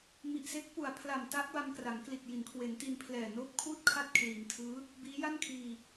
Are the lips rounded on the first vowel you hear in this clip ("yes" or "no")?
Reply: no